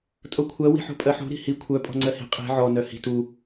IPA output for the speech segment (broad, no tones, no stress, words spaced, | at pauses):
tʼokʷʰɜ wi̤ħo̤pʼɜħo̤ ɾi̤hi kʷʰœ pʼɔ̤ŋ͡ǀɜhi̤ qʼi̤ ʕɔ nœhi̤t u